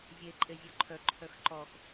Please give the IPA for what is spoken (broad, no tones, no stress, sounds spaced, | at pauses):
zʲ e ǃʼ e zʲ ɔ ǃʰ œ ǃʰ œ x ǃ ɔ x